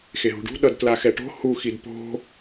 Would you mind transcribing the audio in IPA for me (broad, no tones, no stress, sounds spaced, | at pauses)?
x e ɦ ṳ ɖ ṳ ɗ ʌ d t l a x ɛ ʈ o̤ h u x i d p o̤